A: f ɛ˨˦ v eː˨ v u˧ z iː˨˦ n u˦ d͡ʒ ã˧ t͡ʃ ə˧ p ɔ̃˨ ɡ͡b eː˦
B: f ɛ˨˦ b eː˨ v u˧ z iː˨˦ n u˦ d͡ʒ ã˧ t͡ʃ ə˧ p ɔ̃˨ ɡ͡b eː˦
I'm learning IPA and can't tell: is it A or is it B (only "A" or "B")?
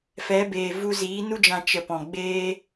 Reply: B